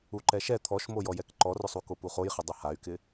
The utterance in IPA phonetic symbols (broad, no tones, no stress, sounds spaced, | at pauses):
u ǃ ɛ ʃ ɛ t̪ʰ ɔ ʃ m o j ɔ j ɛ k ǃ ɔ r ʊ sˤ u k o p u χ o j χ ɪ dˤ ʊ h a y̯ k ɪ